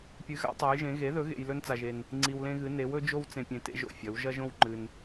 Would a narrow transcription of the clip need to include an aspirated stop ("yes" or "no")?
no